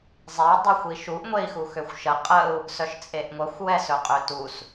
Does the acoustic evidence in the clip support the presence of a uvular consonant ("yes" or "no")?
yes